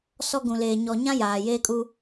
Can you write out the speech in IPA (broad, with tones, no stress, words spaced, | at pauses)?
sɔ˦ɡũ˨leː˨ ɲɔ˨ɲã˦ jaː˨ jeː˦kʼu˦